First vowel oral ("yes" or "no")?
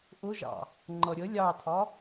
yes